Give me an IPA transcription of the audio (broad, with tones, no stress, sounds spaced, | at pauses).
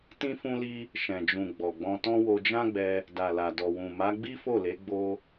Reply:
t ĩ˧ f ũ˧ l i˧ | ʃ ɛ̃˨ d͡ʒ ũ˨ ɡ͡b ɔ˨ ɡ͡b ɔ̃˧ t ɔ̃˦ w o˧ d͡ʒ ã˦ ɡ͡b ɛ˧ | d a˨ l a˨ d ɔ˨ w ũ˨ m a˨˦ ɡ͡b i˦ f o˦˨ l e˨˦ ɡ͡b o˧